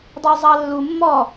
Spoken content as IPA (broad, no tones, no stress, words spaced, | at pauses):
dˤɪwzˤɑlːu mːɔ